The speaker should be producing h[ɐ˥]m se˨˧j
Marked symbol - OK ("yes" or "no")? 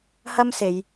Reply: yes